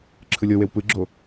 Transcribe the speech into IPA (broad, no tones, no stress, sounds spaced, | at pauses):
ǁʰ ɯ lʲ ɤ w e w p ɯ ɡ͡ǁ o